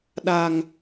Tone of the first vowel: low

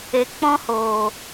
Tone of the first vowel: low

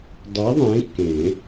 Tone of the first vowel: rising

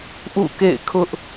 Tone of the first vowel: falling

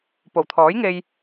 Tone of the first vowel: low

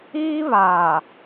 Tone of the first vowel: high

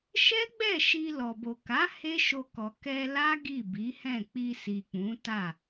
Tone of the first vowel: high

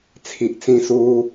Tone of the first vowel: low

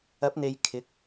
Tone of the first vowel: rising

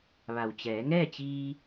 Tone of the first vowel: low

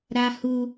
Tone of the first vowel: high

